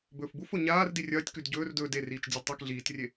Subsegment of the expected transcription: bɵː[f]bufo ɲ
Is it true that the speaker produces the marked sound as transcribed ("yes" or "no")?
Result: yes